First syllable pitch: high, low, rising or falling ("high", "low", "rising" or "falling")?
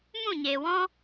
falling